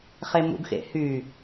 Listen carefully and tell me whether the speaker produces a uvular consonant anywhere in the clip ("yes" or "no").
yes